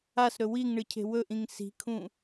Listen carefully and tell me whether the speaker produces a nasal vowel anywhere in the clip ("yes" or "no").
yes